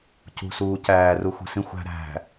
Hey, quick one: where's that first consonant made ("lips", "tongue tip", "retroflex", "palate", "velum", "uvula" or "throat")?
palate